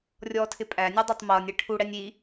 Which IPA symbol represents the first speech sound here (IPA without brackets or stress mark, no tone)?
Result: rʲ